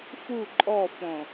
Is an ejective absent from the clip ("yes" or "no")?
no